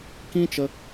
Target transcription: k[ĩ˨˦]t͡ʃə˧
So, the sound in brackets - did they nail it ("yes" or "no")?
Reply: no